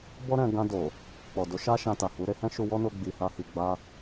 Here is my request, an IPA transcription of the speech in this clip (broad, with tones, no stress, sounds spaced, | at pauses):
b ɔ˦ ɾ ɛ̃˧ ɡ ã˧ d o˨ | k͡p ɔ˨ d o˨˦ ʃ a˦ ʃ ã˧ t a˨ h u˨˦ ɾ e˦ h ɛ̃˦ ʃ u˧ w ɔ˦ n o˧ ɡ͡b i˨ h a˧ h i˨ ɡ͡b a˧